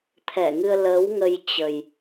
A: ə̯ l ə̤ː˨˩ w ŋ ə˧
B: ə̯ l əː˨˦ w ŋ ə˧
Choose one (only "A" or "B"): B